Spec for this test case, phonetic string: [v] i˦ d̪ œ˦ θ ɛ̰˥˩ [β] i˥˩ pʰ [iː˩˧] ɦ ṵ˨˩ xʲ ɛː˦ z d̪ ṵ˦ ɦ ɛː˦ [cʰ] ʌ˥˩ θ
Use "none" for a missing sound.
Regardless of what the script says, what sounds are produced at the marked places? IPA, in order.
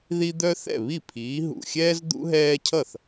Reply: ð, β, iː˩˧, cʰ

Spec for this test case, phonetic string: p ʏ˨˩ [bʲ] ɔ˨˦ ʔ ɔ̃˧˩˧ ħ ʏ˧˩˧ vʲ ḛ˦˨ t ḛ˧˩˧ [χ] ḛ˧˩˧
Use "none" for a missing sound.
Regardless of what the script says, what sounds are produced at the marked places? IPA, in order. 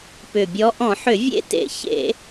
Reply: bʲ, ç

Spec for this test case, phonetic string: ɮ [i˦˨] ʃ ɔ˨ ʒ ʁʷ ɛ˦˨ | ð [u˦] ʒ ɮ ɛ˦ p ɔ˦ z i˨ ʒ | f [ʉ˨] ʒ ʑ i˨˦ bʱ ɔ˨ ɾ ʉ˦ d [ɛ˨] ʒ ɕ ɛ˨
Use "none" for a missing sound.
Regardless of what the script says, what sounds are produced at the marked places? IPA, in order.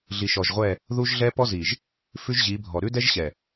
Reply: i˨, u˦, ʉ˦, ɛ˦

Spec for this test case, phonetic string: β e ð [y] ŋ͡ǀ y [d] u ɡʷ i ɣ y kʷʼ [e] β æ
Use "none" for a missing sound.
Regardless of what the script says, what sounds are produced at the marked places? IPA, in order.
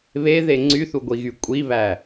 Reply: e, θ, i

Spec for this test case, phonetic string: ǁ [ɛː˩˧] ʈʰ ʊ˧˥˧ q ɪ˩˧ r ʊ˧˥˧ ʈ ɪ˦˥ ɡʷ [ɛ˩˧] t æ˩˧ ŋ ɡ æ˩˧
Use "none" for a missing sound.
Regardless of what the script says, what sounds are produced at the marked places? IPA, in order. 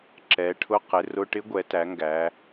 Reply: ɛ˩˧, ɛ˩˧

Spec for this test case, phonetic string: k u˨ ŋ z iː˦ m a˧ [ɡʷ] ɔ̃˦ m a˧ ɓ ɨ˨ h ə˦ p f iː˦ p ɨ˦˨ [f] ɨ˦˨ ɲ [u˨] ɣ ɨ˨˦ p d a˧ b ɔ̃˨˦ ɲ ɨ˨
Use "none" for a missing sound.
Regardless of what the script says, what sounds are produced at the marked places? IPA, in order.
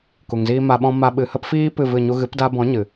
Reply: ɓ, v, u˦

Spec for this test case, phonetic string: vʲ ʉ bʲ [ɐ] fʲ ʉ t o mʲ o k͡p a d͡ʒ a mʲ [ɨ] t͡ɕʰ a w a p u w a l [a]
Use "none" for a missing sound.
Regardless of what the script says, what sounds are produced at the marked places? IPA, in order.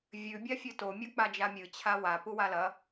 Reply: a, ɨ, ɐ

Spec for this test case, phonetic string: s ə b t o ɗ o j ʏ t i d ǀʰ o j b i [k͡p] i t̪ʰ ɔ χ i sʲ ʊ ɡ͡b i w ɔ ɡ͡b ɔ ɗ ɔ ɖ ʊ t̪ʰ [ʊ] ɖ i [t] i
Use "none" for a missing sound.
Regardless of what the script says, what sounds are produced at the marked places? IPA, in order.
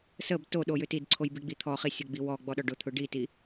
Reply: ɡ͡b, ʊ, t

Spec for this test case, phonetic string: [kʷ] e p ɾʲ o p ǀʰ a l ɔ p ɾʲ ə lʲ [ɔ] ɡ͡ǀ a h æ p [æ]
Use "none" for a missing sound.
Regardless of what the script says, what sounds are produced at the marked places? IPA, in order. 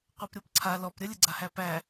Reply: qʷ, ə, æ

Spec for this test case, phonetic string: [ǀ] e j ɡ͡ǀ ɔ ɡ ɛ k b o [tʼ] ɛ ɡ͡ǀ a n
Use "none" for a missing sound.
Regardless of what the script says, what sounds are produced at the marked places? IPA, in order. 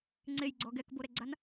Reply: ŋ͡ǀ, ɾ

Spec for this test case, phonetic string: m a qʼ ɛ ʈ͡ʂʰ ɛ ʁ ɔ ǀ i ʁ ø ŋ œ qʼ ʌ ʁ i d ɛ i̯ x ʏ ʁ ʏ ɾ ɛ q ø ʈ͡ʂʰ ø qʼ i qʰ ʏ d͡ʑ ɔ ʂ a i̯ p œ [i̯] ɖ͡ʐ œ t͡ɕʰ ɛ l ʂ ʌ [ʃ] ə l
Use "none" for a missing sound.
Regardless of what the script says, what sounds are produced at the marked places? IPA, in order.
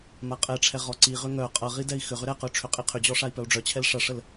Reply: u̯, ʂ

